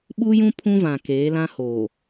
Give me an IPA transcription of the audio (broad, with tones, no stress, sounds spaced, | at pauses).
ɓ u˦ j ũ˦ pʰ ũ˦ v ã˨ k eː˨˦ l ã˦ h oː˨